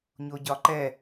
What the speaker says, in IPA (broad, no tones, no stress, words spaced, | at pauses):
ɲoɟɒǃɛ